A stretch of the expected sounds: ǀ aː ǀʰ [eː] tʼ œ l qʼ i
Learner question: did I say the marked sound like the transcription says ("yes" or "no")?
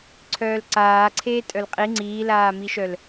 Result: yes